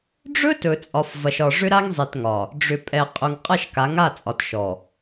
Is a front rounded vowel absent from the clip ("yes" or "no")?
no